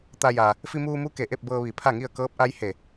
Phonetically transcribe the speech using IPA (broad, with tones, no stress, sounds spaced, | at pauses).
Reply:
t̪ a˧ j a˩ | f i˧ m uː˧ m u˧˥ k e˩ ʔ e˥˨ p̚ b ɤː˧ ʋ i˧˩ pʰ a˥˨ ŋ i˥˨ ə̯ k ɤː˧˥ p̚ ʔ a˧˥ j h e˧˩